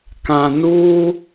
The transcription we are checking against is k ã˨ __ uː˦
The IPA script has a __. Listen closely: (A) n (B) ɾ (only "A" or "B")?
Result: A